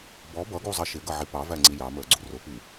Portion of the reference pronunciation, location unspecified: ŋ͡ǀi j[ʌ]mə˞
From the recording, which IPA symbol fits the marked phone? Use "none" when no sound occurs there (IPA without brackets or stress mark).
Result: ɑ